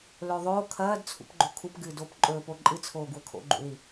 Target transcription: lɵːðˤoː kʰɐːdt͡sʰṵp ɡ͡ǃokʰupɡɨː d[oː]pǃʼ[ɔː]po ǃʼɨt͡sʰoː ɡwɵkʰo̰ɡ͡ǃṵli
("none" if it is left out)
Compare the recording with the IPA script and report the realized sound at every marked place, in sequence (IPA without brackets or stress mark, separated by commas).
oː, ɵː